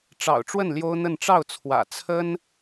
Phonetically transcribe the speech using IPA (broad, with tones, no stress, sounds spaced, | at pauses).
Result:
ʈ͡ʂ ɑ̰˨˩ ʊ̯ ʈ͡ʂ w ə˥˩ n l j o˥ ʊ̯ n̪ ə˥˧ n ʈ͡ʂ ɑ˥˩ ʊ̯ t͡sʰ w ä̰˨˩ t͡sʰ ə˥ n